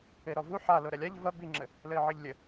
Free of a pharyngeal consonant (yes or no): no